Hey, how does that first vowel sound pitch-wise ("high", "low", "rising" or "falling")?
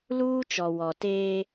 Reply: high